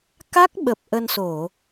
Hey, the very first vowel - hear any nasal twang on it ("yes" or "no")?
no